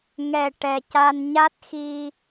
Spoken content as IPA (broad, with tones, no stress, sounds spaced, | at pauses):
ŋ ɛ˨˩ ʈ ɛ˨˩ c a˧ n ɲ a˦˥ t̚ x i˧